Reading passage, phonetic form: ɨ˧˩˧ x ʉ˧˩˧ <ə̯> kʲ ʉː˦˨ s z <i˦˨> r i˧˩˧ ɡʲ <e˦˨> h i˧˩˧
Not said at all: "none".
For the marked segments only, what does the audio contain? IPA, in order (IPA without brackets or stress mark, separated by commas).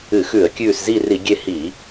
ə̯, i˦˨, e˦˨